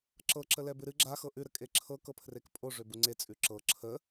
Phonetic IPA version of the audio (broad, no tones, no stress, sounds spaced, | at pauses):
ǁ ɤ ǁ ə l ɛ b ɨ ɾ ɨ ɡ͡ǁ a x ɤ ʔ ʉ ɾ ə kʼ e ǁʰ ɤ k ɤ pʰ r e k pʼ o ʐ ø b u ŋ͡ǀ e t͡sʼ ʉ ǁ ɤ ǁʰ ə